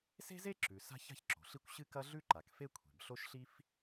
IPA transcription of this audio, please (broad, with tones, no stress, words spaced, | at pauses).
se̤˥ze˥ǁʉ˩ sa̤˥ça̤˥çǁo̤˩ɬi˥kʷ ɕɨ˥kɐ˥ɮʉ˥ ǃa˩kfe˥ kʷʰe̤˩bɬo˥ʃɬi˥f